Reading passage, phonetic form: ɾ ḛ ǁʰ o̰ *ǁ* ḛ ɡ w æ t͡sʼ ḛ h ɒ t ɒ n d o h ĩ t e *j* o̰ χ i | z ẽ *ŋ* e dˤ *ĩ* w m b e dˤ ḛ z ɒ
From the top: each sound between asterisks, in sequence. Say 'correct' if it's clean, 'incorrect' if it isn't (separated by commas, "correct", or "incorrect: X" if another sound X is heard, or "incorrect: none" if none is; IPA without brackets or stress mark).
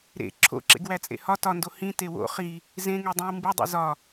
correct, incorrect: w, correct, correct